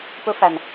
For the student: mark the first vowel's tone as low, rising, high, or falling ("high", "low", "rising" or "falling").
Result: high